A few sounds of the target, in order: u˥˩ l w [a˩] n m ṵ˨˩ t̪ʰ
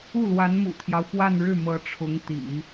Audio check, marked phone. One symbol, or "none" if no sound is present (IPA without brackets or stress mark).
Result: a˧˥